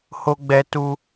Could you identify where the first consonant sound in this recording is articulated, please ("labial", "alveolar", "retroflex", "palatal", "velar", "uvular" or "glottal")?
glottal